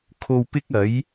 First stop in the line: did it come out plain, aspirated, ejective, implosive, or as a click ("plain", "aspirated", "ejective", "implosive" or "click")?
aspirated